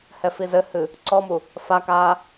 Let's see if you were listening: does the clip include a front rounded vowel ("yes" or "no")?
no